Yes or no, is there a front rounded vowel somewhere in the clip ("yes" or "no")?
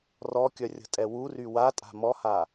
yes